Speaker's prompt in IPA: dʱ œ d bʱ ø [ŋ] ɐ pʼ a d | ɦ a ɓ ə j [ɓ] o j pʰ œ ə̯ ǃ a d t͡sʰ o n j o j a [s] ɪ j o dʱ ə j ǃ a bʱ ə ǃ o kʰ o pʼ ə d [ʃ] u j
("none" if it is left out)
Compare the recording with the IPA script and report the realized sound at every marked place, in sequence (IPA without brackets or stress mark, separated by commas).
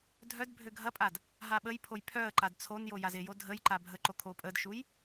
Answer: ɡʱ, pʰ, z, ʃ